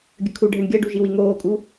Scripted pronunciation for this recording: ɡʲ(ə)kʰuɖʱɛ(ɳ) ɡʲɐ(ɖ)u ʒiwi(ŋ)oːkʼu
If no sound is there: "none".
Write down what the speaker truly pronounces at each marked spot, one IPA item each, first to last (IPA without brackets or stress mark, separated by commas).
ə, ɳ, ɖ, ŋ